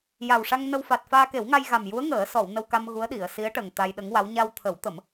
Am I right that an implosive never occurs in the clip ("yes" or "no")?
no